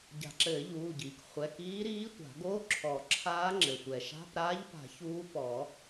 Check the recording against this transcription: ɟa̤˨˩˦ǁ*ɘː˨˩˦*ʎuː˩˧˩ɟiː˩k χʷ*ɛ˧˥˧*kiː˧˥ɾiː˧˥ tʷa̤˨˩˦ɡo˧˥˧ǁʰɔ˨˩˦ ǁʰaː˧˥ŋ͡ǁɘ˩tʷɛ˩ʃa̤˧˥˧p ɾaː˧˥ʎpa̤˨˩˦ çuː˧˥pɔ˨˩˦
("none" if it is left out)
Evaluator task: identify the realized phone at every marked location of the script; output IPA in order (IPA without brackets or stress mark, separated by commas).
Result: ɘː˨˩˦, ɛ˩˧˩